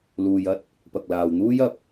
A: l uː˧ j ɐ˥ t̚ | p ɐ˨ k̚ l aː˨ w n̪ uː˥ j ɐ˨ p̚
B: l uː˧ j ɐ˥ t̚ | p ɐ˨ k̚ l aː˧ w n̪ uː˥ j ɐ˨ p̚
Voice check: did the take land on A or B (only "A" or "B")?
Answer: A